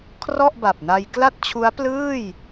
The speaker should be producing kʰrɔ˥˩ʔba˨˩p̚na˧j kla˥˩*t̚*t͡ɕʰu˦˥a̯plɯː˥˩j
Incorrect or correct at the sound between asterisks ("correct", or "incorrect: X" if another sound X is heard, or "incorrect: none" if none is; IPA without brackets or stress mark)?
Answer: correct